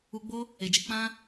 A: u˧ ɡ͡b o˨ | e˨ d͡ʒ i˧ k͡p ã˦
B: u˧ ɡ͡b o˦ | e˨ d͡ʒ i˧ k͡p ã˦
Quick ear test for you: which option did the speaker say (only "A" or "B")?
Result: B